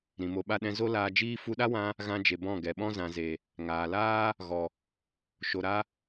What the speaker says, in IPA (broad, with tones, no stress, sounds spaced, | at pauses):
ɾ ĩ˨ m o˧ ɓ a˦ ɗ ɛ̃˦ z o˦ l aː˧ d͡ʒ iː˦ f u˧ ɗ a˦ w ã˧ | ɣ ã˧ d͡ʒ e˨ b ɔ̃˦˨ ɡ ɛ˨ ɓ ɔ̃˦ z ã˨ z e˨ | ŋ aː˨ l aː˦ | ɣ ɔ˨ | ʃ o˨ ɾ a˧